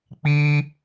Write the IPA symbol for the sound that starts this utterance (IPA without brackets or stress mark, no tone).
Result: k͡p